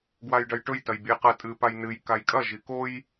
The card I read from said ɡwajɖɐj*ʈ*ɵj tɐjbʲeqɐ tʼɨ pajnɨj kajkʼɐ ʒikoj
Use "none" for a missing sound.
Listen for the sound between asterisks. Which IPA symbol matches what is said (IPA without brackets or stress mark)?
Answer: ʈ